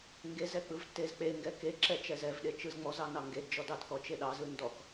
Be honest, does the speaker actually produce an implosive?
yes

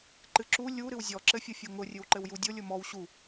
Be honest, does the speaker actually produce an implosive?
no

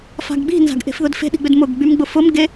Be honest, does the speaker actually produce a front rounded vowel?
yes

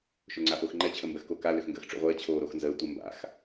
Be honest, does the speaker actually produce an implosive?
no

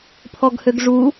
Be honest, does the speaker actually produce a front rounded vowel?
yes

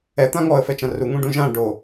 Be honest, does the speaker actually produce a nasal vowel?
yes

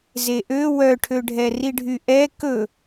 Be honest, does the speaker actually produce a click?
no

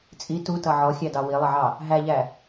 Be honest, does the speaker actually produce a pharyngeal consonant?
yes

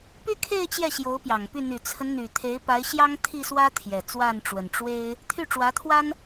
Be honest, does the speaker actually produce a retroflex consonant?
yes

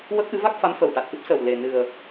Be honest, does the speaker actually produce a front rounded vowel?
no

